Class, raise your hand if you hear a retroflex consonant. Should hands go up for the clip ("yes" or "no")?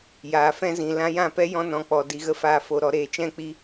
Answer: no